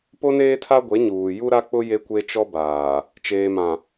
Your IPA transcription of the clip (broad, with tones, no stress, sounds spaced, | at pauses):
p o˦ n eː˦ tʰ a˦ ɡʷ e˨˦ ɲ uː˨ j u˦ ɾ a˦ k͡p ʊ˦ j e˦ kʷ e˦ t͡ʃ ɔ˦ b aː˨ | t͡ʃ eː˨ m ã˨